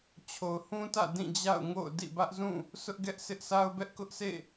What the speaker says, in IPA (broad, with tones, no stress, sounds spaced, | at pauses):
t͡ɕʰ o˨ ʊ̯ h ũ˦ t ä̰˦˨ d ĩ˦˨ d͡ʑ a̰˦˨ ʊ̯ ŋ o̰˦˨ ʊ̯ d ḭ˦˨ b ä˦ ʔ z ũ˦˨ | sʰ ʊ˦ ʔ ɡ ɛ˦ ʔ s ɪ˦ ʔ sʰ a˦ ʊ̯ b ɛ˦ ʔ k ʊ˦ ʔ sʰ ḛ˦˨